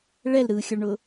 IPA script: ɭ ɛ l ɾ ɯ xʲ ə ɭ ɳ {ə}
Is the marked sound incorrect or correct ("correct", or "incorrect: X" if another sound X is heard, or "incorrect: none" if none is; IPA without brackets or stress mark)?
incorrect: ʊ